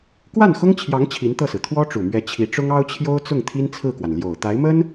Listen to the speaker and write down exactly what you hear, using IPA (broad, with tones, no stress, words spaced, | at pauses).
kwa˥˩nxʊ˥ŋt͡ɕʰjɑ˧˥ŋ t͡ɕʰi˧˥nt̪ɤ˥˩sɹ̩˩ t̪ʰwɔ˥ʈ͡ʂu˨˩mɥɛ˧˥ t͡ɕʰi˧˥ʈ͡ʂʊ˥ŋ ɑ˥ʊ̯t͡ɕʰjo˥ʊ̯t͡sʊ˥˩ŋ t̪ʰi˥nt͡sʰɹ̩˥˩kwa˩n ljo˨˩ʊ̯t̪a˧˥ɪ̯mə˥n